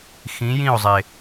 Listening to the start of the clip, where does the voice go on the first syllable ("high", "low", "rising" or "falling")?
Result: rising